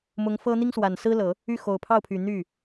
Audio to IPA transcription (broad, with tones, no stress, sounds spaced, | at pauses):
m ʊ˧˥ ŋ f ɤ˥ n̪ i˥ ŋ s w a˨˩ n s ɹ̩˥ l ɤ˨˩˦ | y˥˩ x o˨˩ ʊ̯ pʰ ɑ˥˩ ʊ̯ pʰ y˨˩ n̪ y˥˩